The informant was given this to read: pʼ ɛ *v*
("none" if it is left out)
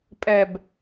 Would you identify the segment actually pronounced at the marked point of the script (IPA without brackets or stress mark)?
b